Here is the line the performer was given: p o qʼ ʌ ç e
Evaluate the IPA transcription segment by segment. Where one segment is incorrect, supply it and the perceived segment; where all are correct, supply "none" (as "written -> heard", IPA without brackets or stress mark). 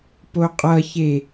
none